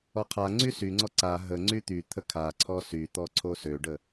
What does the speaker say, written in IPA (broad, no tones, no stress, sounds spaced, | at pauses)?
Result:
ɔ qʰ a ŋ͡ǀ y s y ŋ͡ǀ ɔ ǀ a ɦ ə ŋ͡ǀ y t̪ y t̪ʰ ə kʰ a ǀʰ ɔ s y t̪ ɔ ǀʰ o s ø ɖ ə